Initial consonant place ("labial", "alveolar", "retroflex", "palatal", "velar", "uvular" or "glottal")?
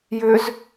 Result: palatal